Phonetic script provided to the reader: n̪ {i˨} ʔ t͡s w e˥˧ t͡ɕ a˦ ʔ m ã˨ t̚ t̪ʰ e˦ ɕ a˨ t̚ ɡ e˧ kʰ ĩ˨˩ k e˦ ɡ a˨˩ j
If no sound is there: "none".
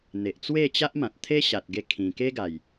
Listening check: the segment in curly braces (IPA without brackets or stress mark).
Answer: e˨